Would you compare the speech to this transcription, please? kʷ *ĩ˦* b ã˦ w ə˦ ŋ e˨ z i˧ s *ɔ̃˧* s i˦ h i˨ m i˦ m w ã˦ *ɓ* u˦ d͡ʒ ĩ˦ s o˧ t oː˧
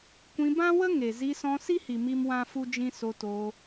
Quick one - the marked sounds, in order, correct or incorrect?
incorrect: ĩ˧, correct, incorrect: f

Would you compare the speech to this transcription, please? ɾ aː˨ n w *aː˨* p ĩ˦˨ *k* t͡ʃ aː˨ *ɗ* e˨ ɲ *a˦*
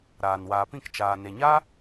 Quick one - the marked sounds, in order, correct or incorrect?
correct, correct, incorrect: n, correct

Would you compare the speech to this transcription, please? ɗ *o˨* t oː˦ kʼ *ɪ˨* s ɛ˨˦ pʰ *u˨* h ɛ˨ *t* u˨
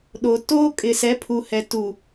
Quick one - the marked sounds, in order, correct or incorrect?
correct, correct, correct, correct

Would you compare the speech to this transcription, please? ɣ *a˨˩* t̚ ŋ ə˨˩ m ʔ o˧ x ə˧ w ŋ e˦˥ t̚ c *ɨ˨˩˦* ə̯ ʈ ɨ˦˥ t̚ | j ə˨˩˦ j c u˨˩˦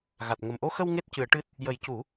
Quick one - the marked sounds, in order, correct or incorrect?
correct, correct

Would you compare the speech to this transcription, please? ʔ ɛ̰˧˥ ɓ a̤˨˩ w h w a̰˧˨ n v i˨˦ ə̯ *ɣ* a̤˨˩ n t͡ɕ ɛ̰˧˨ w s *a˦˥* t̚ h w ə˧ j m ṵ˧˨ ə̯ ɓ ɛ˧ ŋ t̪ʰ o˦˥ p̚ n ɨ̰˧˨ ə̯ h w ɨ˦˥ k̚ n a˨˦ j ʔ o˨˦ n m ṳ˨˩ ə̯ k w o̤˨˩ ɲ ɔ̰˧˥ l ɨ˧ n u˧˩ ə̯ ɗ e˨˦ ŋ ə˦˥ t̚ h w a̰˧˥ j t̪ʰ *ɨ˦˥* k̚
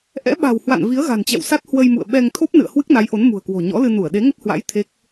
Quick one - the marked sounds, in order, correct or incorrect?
correct, correct, incorrect: e˦˥

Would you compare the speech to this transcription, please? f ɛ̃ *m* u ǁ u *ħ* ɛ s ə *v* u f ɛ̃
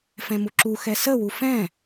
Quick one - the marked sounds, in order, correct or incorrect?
correct, incorrect: x, incorrect: w

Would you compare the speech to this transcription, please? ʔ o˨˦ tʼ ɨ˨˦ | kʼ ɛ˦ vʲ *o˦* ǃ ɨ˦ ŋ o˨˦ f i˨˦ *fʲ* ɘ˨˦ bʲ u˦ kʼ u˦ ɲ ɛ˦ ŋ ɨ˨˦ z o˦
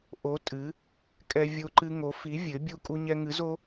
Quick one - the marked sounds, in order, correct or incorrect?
correct, incorrect: vʲ

